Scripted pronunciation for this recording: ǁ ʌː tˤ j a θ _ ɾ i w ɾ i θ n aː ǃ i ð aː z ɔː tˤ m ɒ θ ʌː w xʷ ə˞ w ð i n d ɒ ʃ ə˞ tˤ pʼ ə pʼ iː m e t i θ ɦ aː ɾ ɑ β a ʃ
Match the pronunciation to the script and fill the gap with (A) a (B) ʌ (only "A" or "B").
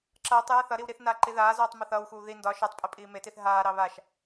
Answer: B